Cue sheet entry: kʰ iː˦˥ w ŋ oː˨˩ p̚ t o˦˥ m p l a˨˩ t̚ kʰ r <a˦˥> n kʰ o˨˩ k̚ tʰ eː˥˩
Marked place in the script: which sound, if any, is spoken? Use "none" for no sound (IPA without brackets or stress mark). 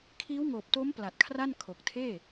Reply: a˥˩